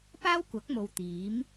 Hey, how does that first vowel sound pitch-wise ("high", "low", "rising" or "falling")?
high